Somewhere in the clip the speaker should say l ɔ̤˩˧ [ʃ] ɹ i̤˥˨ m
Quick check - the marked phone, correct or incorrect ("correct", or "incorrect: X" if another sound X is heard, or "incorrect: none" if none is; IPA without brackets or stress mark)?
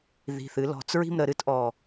incorrect: t͡s